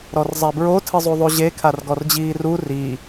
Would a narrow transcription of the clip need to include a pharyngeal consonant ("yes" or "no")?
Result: no